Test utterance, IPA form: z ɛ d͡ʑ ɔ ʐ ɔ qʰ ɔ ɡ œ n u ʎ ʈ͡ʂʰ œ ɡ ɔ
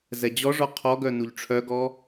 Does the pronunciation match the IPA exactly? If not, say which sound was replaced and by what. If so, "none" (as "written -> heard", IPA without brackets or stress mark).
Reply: none